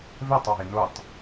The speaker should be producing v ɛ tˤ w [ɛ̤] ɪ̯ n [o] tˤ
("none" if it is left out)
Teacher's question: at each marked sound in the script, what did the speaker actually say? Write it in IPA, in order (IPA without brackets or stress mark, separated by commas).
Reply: ɛ̤, o